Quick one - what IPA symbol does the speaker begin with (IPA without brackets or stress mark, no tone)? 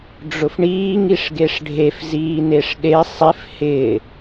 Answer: ɖ͡ʐ